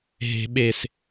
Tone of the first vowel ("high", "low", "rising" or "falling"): high